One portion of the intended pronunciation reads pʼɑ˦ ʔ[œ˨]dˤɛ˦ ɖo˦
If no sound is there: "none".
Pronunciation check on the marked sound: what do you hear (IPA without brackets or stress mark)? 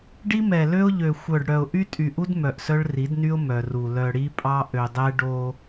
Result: ø˨